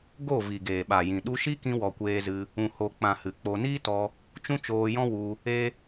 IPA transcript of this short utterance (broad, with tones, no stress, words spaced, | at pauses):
ɡo˦˨ vi˨ɡeː˨ɓa˨jĩ˨ ɗu˧ʃi˦kĩ˧ wɔ˨kʷeː˧zɨ˧ | ũ˨ho˨k͡pã˨ hɨ˨k͡po˧ niː˦tɔ˧ | t͡ʃũ˦t͡ʃoː˧jɔ̃˦ wu˧ | e˦